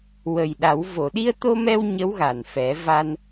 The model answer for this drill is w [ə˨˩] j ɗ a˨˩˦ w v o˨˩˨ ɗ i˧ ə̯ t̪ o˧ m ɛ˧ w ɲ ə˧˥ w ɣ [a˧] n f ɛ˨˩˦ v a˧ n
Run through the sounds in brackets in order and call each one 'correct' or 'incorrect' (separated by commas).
correct, incorrect